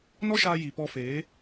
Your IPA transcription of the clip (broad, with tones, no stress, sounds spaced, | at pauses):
n ɔ˦ ʃ aː˧ j i˨ p ɔ˧ f eː˨˦